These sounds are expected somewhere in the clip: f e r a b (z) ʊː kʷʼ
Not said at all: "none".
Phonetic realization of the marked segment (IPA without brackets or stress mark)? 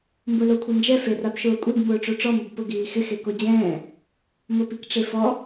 ʃ